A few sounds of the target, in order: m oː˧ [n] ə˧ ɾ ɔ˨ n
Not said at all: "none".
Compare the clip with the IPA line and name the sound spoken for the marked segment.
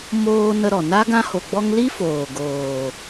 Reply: n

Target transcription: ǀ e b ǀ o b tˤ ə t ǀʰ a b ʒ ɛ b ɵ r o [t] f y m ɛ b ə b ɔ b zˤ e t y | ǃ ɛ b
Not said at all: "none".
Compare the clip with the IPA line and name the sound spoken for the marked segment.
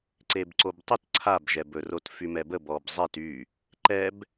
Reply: t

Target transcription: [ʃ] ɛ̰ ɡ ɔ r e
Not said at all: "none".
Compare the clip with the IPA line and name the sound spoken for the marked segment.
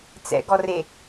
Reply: t͡s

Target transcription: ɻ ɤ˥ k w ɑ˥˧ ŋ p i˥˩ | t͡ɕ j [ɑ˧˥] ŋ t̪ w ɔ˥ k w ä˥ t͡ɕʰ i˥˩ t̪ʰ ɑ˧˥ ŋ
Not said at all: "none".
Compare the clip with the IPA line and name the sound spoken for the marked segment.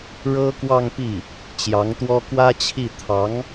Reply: ɑ˧˥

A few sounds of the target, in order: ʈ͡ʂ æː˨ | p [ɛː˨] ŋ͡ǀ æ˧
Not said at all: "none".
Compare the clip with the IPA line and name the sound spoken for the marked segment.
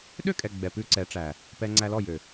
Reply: ɛː˧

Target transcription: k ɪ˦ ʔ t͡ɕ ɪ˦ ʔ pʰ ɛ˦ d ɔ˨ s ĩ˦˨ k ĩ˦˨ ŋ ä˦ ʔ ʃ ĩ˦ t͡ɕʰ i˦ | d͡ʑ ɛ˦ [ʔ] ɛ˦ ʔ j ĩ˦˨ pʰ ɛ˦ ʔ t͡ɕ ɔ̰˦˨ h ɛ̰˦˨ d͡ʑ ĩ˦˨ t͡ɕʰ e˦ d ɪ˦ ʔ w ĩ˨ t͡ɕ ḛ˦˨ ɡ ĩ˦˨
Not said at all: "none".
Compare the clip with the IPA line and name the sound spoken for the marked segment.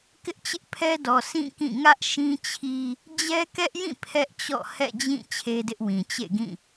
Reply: k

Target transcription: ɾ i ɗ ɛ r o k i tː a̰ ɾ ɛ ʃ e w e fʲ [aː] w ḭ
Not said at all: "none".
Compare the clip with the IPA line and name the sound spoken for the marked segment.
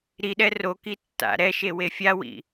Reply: a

